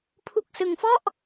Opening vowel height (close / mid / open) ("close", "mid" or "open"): close